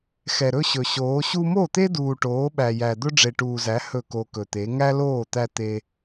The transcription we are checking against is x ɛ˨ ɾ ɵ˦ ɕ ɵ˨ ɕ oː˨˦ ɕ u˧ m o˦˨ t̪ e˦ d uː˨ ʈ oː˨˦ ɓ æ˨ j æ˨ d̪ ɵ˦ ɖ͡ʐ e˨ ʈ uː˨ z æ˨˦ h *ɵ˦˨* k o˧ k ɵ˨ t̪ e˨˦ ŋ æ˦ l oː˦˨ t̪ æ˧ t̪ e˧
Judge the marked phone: correct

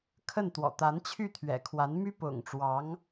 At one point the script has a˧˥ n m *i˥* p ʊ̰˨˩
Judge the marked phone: incorrect: y˥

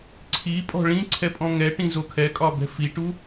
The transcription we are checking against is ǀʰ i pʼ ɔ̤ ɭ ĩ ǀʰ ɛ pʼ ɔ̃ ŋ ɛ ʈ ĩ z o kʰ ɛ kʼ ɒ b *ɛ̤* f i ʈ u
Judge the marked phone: correct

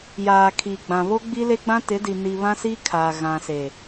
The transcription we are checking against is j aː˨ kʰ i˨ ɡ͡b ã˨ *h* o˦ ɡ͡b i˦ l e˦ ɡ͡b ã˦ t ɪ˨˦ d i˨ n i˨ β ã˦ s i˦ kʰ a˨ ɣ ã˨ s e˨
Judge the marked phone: incorrect: β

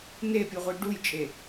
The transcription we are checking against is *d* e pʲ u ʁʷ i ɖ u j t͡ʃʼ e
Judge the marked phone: incorrect: n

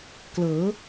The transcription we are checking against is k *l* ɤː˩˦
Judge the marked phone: correct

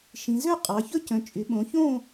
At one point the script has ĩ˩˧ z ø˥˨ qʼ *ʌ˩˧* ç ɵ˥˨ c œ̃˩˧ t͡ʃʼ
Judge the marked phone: incorrect: ɑ˩˧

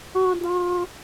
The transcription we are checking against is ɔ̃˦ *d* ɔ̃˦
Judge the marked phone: correct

